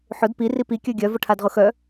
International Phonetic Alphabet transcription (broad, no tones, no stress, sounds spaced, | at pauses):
ħ ʊ d p i r i p i kʲ œ ɡʲ œ v ʊ ʈʰ a d ʁ ʊ x œ